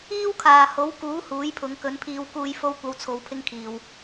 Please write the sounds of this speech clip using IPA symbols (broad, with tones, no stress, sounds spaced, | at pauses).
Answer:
iː˥ w kʰ aː˨ h o˨˥ w k uː˨˥ h uː˨˥ j pʰ ʊ˨˧ ŋ k ɵ˨˥ n pʰ iː˧ w k uː˧ j f o˥ w kʷ ɐ˧ w t͡sʰ o˨˧ w pʰ ɪ˥ ŋ kʰ iː˨ w